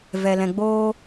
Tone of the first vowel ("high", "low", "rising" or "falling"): low